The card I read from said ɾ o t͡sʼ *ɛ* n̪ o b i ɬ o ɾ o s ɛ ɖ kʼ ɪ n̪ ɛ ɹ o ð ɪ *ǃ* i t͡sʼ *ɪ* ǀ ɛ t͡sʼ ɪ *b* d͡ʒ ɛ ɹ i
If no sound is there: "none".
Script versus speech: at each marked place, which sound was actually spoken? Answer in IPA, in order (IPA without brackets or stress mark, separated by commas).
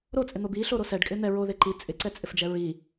ɪ, ǃ, ɪ, f